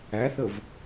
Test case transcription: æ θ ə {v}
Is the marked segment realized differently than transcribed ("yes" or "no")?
no